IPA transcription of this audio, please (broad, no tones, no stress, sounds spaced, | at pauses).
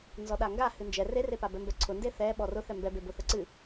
n z ɔ ɗ a ŋ ɡ a h ɨ n d͡ʒ ɛ r e r e p a b ɛ m b ɛ ǀʰ ʊ n d e θ ɛ ɓ ɔ r ʊ θ ɛ m b ɛ b e b ʊ θ ə ǀ ɨ